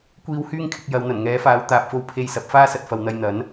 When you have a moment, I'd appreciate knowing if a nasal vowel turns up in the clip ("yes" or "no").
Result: no